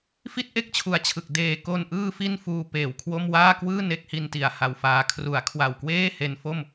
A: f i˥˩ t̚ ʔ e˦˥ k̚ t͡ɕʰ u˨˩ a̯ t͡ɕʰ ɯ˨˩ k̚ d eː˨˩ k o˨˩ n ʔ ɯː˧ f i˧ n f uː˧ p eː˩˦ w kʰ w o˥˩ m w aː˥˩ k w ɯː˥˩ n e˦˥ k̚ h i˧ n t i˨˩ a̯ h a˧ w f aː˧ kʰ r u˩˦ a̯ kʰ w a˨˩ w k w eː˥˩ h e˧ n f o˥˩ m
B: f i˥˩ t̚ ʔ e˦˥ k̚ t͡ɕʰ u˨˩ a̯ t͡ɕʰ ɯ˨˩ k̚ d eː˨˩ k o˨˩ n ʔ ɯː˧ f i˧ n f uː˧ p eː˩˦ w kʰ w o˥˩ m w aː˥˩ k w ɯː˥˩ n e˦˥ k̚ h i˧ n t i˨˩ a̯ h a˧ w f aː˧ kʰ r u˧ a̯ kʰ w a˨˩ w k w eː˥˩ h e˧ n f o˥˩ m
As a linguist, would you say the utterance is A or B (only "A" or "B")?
A